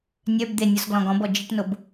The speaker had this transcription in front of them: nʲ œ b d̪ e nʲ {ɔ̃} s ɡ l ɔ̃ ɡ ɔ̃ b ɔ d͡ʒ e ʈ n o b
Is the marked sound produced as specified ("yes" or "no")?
no